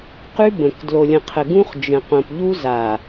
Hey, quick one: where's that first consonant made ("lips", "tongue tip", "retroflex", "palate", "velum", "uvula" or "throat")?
uvula